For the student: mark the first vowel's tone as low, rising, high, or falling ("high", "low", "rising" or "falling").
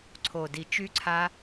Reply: low